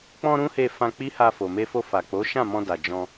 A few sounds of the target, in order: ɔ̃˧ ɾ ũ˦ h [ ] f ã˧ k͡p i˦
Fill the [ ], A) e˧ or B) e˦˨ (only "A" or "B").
A